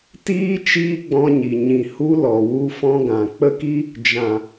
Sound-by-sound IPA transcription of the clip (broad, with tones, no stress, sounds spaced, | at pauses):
t iː˦ t͡ʃ iː˦ ɡ͡b ɔ̃˧ ɲ i˨ ɲ ĩ˨ h u˧ l ɔ˨ w u˧ f ɔ̃˧ ɡ ã˨ k͡p ə˧ k i˧ | d͡ʒ ã˨